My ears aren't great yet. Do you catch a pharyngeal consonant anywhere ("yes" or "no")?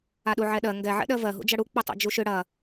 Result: yes